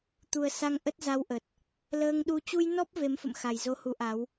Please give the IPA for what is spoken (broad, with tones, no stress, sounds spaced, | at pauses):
t̪ u˨˩ ə̯ s a˧ ŋ ʔ ə˦˥ t̚ z a˧ w ʔ ə˨˩ t̚ | l əː˧ ŋ ɗ u˧ t͡ɕ u˧ j n ɔ˦˥ p̚ v e˨˦ m f ə̰˧˨ m x a˨˩ j z o˧ h u˨˦ ʔ a˨˦ w